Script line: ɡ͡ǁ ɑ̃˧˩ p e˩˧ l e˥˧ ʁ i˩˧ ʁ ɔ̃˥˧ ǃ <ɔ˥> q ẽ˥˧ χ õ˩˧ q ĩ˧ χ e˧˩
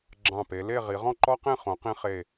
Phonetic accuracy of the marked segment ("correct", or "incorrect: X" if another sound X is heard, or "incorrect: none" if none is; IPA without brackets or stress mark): correct